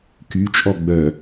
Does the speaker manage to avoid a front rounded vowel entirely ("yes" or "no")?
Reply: no